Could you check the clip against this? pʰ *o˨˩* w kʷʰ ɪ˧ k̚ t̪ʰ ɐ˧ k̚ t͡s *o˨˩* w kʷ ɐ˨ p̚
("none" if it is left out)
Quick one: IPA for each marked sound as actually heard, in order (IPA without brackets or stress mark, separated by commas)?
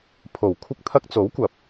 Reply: o˨˩, o˨˥